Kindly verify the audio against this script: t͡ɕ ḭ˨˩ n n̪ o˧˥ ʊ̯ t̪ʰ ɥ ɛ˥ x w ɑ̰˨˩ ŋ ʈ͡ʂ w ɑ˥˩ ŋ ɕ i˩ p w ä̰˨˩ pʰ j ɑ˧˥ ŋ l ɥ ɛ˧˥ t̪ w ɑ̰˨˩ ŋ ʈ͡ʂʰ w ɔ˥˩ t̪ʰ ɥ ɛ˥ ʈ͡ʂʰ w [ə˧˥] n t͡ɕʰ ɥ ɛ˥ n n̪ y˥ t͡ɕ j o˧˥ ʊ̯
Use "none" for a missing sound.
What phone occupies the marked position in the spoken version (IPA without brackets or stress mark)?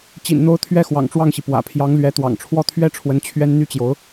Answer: ə˧˥